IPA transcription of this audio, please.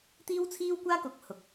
t̪iː˥wt͡sʰiː˥wkʷaː˥ kʊ˨˥k̚ hʊ˨k̚

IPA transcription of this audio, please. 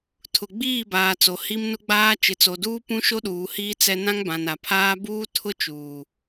tʰʊ˨ɡ͡biː˦˨baː˨t͡so˨ hi˦mnʊ˦ɡ͡baː˦ t͡ʃɪ˨t͡so˨duː˦pũ˦ ʃo˦ɗuː˨hiː˦ t͡sɛ˦ nã˦ŋbã˨na˨pʰaː˦ buː˦tʰʊ˦t͡ʃuː˨

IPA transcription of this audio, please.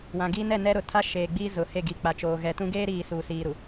wã˨ɡi˦nɛ˦˨nɛ˦ ɾʊ˨tʰa˦ ʃeː˨ɡ͡biː˦ zʊ˨he˦˨ɡi˨ k͡pa˨t͡ʃoː˨ɣɛ˨tũ˦ ɡeː˦ɾiː˨ suː˨siː˨ɾu˨

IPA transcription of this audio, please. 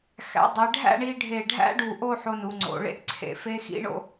xæ̰˩˧dˤe˩˧ ɖʱæ̰˥˧ɳi˧ ɖʱe˧˩ɖʱæ̰˥ɖu˧˩ʔo˥˧ ħo˧nu˩˧ ŋ͡ǀo̰˩˧ɭḛ˥ʔ ǀʰḛ˧˩fe˥ xḭ˥ɳo̰˥

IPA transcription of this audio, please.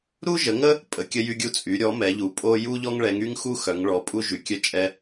ɾu˦ʒə˩˧ŋə˦ | pʼə˩˧kʲə˦ jy˦ɡʲu˦ t͡sʼy˩˧ ɾʲɔ˩˧ mɛ˩˧ʎu˩˧ pʼo˦ ju˦ʎɔ˦ŋɭɛ˩˧ŋy˦ŋ xu˦ xœ˩˧ŋɭɔ˩˧pʼu˦ ʒy˩˧kʲœ˦t͡ʃʼɛ˦

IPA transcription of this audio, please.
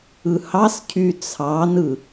ɯhɑscʰy t͡sʰɑnɯ

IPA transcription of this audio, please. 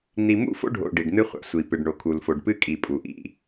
n̪i˨mṵ˦˨fo̰˦ɖʱo̰˨ ɖi˨ɖn̪ɨ˦ χʷa̰˨ sʷi˨ pɨ˨ɖɳo˨kʰu˨lfo˨ɖ pɨ˦kʼi˨ pʼu˨ʔḭ˦˨

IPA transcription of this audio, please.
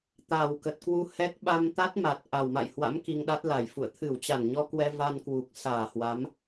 t̪a˨˩w kə˨˩t̚kwu˧ hɛ˦˥k̚ɓa˧m t̪a˦˥t̚ma˨˩t̚ ʔa˨˩wma̰˧˨jhwa̰˧˥m ki˧ŋɗa˦˥t̚la˧˩jfṵ˧˨ə̯ t̪ʰɨ˧˩wt͡ɕa˧˩nɲɔ˧kwɛ˧ va˧nkwu˨˩k̚saː˧˩hwa˨˦m

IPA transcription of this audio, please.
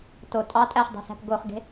to tʼɑ tʼæχdˤe̤sæ̤p ɡoχɡe̤

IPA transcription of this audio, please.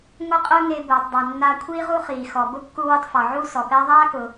ŋʷe˥qʼʊː˥ŋe˧ bʊː˩tˤdˤɛ˩ nːaː˧kʷʰiː˥ʁu˥ χiː˩xɔ˩bʊ˥ kːu˧wɪ˧tˤ fɔ˩ ʕu˥sɔ˩pɛ˥ ðˤaː˥kʊː˩

